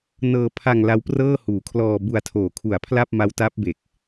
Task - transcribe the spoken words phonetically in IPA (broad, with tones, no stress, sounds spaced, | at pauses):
n ɤː˧ pʰ a˧ ŋ l a˦˥ w p r ɤː˥˩ h uː˨˩ kʰ l ɔː˧ b u˧ a̯ tʰ oː˨˩ kʰ u˨˩ a̯ pʰ l a˥˩ p̚ m a˦˥ w t a˦˥ p̚ b e˨˩ k̚